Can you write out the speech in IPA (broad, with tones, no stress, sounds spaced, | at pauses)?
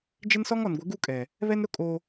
d͡ʒ ɪ˦ n s ɔ˦ ŋ ɔ˨ n ɡʷ ɪ˨˦ ɡ u˦ kʼ ɛ˨ | β ɛ˦ n ɾ ʊ˦ kʼ o˦